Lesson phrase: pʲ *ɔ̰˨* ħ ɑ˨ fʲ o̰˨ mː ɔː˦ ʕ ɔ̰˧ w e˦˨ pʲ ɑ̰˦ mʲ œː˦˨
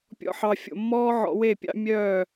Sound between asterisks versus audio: correct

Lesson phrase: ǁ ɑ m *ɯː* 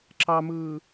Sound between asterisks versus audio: correct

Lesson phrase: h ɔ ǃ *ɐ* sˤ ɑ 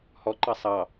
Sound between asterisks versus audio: incorrect: ɑ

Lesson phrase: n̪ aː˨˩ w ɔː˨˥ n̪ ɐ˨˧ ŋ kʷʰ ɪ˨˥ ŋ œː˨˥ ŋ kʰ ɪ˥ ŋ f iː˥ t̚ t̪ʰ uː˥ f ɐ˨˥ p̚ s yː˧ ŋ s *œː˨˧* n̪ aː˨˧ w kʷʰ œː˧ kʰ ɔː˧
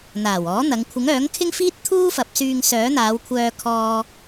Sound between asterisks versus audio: incorrect: œː˨˥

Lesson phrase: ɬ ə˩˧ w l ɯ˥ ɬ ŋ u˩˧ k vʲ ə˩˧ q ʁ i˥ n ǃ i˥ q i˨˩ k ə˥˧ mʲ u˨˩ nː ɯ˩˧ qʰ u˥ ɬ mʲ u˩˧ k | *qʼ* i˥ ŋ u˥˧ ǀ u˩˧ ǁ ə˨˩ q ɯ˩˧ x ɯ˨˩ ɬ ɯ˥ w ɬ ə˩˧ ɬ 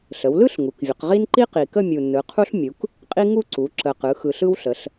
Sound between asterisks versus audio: correct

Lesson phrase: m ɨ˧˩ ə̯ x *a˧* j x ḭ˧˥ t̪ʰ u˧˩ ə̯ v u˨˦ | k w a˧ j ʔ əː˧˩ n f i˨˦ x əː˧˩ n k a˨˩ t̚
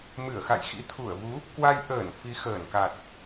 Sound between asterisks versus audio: incorrect: a̰˧˨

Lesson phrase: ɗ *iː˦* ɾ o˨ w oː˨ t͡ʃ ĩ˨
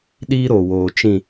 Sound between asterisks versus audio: correct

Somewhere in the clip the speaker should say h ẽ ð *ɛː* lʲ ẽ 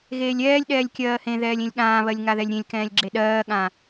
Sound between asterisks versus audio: correct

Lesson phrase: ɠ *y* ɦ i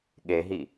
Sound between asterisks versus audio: incorrect: e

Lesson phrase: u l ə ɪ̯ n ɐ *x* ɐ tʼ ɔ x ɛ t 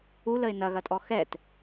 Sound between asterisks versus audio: incorrect: ɣ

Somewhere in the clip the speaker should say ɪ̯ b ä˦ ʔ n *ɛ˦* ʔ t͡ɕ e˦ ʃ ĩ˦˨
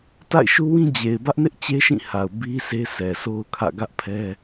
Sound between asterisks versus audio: incorrect: ɪ˦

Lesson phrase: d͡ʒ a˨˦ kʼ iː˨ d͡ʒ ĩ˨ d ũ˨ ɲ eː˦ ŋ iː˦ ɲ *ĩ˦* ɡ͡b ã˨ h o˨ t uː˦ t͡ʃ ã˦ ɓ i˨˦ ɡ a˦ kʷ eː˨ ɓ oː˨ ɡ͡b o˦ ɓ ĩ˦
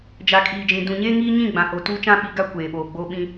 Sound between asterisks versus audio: incorrect: ĩ˦˨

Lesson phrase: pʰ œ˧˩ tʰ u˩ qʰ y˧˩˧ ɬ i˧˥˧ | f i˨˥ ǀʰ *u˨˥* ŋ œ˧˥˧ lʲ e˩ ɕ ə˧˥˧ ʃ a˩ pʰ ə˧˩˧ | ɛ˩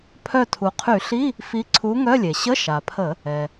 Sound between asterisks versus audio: correct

